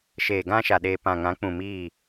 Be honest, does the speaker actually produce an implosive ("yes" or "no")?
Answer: yes